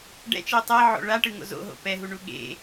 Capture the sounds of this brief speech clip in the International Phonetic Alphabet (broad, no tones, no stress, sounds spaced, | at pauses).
ɖ ɛ̰ t͡ʃ i tˤ ɛ ʕ o̰ ɭ a ʈ ɯ ŋ o̰ z o̰ ɦ o̰ p ɛ ɦ u ɳ u ɠ ḛ